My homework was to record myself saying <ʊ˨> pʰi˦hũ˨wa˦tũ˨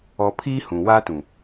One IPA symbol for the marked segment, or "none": ɔ˨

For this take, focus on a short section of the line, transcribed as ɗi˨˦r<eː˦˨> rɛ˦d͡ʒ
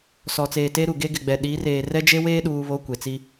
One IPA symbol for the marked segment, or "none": eː˨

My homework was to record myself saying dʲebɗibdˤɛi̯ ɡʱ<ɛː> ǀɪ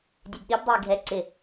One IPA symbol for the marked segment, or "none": ɛ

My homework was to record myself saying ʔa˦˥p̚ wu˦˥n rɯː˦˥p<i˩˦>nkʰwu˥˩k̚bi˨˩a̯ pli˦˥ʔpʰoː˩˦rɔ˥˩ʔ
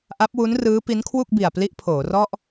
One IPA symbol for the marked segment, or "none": i˦˥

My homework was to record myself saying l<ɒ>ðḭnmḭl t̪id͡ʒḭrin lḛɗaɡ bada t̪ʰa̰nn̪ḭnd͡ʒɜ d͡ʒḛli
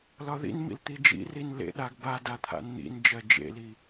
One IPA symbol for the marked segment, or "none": ɒ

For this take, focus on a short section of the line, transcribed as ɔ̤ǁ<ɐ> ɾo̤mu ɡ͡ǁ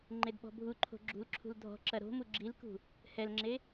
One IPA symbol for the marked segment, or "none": ɐ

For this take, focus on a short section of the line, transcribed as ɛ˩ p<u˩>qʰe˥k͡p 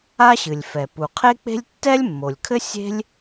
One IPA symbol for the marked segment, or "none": u˩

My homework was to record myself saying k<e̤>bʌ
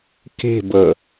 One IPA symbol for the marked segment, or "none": e̤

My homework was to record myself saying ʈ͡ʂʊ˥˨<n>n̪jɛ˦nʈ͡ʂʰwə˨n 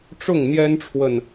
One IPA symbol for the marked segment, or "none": ŋ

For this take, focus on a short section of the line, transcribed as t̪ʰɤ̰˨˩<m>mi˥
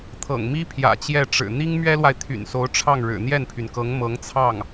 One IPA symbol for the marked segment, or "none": ŋ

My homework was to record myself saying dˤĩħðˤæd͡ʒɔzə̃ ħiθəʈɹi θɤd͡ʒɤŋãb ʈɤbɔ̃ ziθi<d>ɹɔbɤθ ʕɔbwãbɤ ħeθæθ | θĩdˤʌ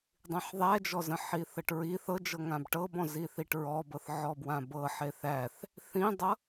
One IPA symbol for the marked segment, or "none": ʈ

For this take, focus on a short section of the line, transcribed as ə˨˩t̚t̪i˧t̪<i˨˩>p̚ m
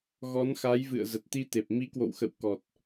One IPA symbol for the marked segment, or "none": e˨˩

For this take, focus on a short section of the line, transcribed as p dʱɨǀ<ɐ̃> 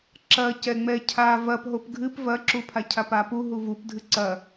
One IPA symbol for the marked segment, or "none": ɐ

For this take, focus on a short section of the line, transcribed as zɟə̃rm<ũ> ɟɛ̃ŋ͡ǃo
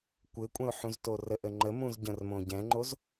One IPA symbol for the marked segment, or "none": õ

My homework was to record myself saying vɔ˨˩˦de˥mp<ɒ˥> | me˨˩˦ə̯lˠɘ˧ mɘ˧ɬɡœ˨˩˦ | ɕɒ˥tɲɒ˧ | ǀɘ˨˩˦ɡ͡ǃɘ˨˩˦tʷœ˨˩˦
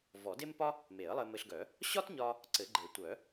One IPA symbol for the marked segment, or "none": ɒ˥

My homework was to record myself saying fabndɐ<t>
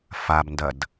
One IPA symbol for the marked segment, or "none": d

